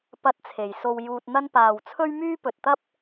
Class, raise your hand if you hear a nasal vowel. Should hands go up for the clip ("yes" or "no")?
no